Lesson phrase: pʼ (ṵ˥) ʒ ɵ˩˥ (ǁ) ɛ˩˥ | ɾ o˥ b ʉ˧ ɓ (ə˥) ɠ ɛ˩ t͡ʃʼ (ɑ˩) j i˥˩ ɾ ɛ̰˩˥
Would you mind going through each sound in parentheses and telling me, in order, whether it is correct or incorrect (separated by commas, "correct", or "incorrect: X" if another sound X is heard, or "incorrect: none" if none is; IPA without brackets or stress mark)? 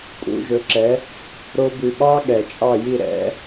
incorrect: ṵ˩˥, correct, incorrect: ɑ˥, incorrect: ɑ˥˩